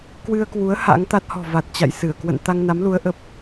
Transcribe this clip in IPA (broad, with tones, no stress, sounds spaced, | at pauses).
k w ɨ˧ ə̯ k w u˨˦ ə̯ h a̰˧˥ ŋ t̪ a˦˥ t̚ h ɔ̤˨˩ v a˨˩ t̚ t͡ɕ a̰˧˨ j s ɨ˧˩ ə̯ k w ə̰˧˨ n t̪ a˧ ŋ n a˨˦ m l u˨˦ ə̯ ʔ ə˨˩ p̚